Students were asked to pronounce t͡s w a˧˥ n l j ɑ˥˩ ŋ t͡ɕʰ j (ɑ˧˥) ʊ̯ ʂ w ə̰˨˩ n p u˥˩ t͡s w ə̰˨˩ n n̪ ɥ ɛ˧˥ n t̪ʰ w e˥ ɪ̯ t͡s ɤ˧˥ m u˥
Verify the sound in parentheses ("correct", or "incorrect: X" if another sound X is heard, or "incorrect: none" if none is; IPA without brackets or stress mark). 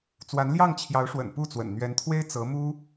correct